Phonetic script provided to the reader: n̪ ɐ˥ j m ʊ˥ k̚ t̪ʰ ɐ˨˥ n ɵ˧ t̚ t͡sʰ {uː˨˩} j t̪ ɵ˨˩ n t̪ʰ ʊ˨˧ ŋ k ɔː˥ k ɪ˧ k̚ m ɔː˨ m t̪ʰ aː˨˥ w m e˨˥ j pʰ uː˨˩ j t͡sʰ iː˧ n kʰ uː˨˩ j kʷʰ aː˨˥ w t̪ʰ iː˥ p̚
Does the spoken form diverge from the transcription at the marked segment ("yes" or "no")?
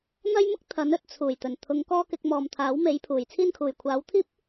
no